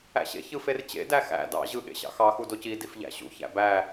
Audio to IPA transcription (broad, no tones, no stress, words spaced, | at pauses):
æ̰ɕḛ çɯfert͡ɕḛ dæxæ̰ dɑ̰ ʑɯ ɠḛɕɑ̰xɑ xudoci difʎæ̰ɕṵ çæ̰bæ